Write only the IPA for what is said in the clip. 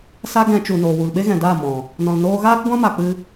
s a˦ ɡ ɛ̃˧ t͡ʃ u˨ n oː˨ w u˨ l ɓ e˦ ɣ ɛ̃˨ d aː˦˨ m ɔ̃˨ | n ɔ̃˨ l n oː˧ ɣ aː˦ k ɡʷ ã˦ m a˧ k͡p ɨ˦

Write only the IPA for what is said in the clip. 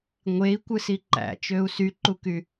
ŋʷ e i̯ kʷ ɯ s i ǃ æ̰ t͡ʃ ø u̯ s y ǃ u k y

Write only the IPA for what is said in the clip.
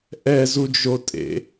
ʔ ɛ z u d͡ʒ o tʼ ḛ

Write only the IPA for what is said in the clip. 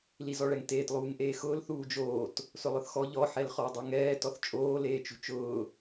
l i z ɔ ɭ ɛ ŋ t eː t lˠ uː ŋ ʔ eː x ʊː l θ uː d͡ʒ oː t | s ʊ lˠ ʊ θ x ɔ ʎ ɔ ħ ɛ l χ ɔ dˤ o ŋ ɛː t ɔ θ t͡ʃʼ oː l eː t͡ʃ ṳ t͡ʃ ʊː

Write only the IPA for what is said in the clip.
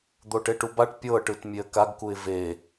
d̪ o ʈ e ʈ u b a ʈ pʲ ɤ ʈ ɯ t mʲ e ə̯ k a ɡ k u ɪ̯ v e

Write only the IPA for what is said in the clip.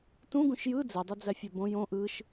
t ũ ɡ ũ ʃ j ɯ d͡z ɛ dˤ u d͡z æ fʲ ɜ b õ j õ ʔ ɯ ʃ

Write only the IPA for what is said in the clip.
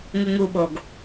ŋ u ŋ u ɓ o ɡ

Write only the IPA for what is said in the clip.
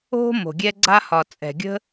o̤˦ m o̤˨ ɡʲ ɛ˧ ɡ͡ǀ a˧ h ɒ˨ t͡sʼ ɛ̤˨ ɡʲ ə̤˦

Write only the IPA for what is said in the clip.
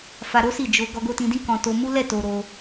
f a˧ ɾ o˦ s i˦˨ d͡ʒ o˧ ɡ ɔ˧ ɡ o˧ t ĩ˧ d ĩ˦ k ɔ̃˧ t o˧ m u˦ l ɛ˦˨ t o˧ ɾ o˧

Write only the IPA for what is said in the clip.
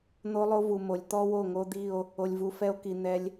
n̪ o˦ lˠ o˦ v u˨ m o˨ lʲ t̪ ɔ˦ w o˦˨ ŋ o˦ d̪ i˦˨ o̯ | o˨ lʲ v u˨ f ɛ˦ o̯ k i˨ n̪ ɛ˦ lʲ

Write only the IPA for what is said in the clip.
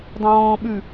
dˤ ũ w ɔ̃ː ɓ ʉ

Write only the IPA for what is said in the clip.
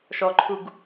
ʃ ɔ ǃʰ u ɡ

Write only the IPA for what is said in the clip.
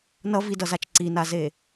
n ʌ v i d ʌ z a t͡ʃ ǀ i n a z e

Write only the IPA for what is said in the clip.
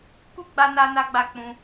k u˦ ɡ͡b a˧ n a˧ n a˦ ɡ͡b a˦˨ k͡p ũ˧

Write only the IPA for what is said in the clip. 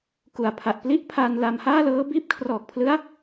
k u˨˩ a̯ pʰ a˨˩ ʔ p l i˥˩ ʔ pʰ a˧ n l a˧ m h aː˥˩ l ɤː˦˥ b iː˦˥ p̚ kʰ r ɔː˨˩ k̚ pʰ l ɯ˦˥ a̯

